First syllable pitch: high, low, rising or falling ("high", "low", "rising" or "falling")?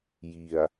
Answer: low